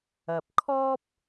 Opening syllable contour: low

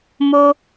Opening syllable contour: low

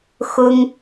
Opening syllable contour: high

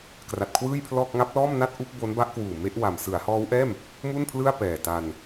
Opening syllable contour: low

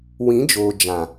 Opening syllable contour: rising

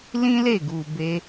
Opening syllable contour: high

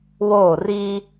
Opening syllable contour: falling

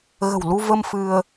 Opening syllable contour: low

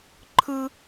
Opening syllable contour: high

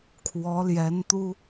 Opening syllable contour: rising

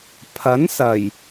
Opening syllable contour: rising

